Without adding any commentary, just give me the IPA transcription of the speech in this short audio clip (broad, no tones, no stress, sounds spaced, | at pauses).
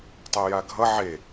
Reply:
tˤ ɛ j a ɡʱ ʌ ʕ e